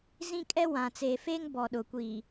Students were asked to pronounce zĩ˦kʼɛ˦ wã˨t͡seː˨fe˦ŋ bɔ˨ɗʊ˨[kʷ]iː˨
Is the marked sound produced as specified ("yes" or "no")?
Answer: yes